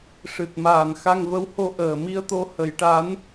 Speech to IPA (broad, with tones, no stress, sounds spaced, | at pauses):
ʂ ɨ˨˩ t̚ m aː˨˩ n x a˧ ŋ v ə˧˥ w h o˧ ʔ əː˨˩ m i˧ ə̯ t̪ o˧ h ə˨˩˦ j ʈ a˧˥ n